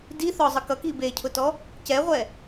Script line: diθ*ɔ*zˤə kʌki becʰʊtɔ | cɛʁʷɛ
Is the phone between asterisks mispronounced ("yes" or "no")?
no